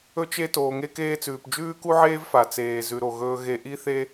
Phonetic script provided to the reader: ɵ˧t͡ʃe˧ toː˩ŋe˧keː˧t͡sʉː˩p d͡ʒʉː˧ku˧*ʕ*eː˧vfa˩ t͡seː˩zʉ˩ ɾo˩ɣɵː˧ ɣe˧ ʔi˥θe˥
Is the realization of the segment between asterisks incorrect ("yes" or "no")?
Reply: no